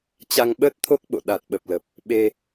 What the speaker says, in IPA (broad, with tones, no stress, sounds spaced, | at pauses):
t͡ɕ a˧ ŋ ɓ əː˦˥ t̚ t̪ʰ o˦˥ k̚ ɓ o̰˧˨ ɗ a˨˩ t̚ ɓ ə˨˩ p̚ l ə˨˩ p̚ | ɓ e˧